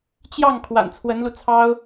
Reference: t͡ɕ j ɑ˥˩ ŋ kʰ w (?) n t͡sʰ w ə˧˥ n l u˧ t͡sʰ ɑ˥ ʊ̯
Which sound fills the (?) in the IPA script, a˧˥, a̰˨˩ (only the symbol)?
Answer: a̰˨˩